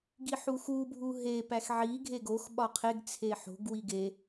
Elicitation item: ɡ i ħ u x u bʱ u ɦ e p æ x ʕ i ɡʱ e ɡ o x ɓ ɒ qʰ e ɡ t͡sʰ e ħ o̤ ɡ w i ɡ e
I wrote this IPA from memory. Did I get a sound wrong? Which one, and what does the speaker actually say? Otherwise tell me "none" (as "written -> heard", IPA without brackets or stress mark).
none